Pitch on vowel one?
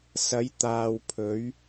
rising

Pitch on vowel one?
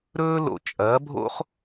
high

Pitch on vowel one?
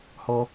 high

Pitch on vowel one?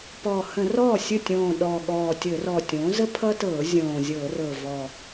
low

